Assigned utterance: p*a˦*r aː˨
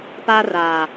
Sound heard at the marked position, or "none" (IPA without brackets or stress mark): a˦